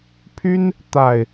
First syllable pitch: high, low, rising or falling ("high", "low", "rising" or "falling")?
high